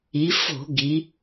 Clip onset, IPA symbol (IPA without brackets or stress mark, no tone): i